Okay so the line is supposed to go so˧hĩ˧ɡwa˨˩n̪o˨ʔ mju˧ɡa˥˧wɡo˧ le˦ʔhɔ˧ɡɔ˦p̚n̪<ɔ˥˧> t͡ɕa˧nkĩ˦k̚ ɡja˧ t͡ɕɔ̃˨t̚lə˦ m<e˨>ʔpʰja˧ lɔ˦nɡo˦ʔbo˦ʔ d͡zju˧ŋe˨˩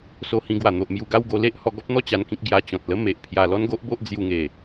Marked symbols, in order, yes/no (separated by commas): yes, yes